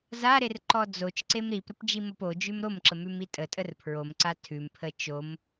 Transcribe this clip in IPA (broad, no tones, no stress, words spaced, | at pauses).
zaɾer ǃɔd͡zot͡ʃǀem ɾipɾəp d͡ʒimopod͡ʒʉm ɾomǁə mʉmitʼətʼər pʰɹomǀa tʰʉmpʰə t͡ʃom